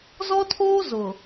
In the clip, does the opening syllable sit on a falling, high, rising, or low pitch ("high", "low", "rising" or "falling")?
high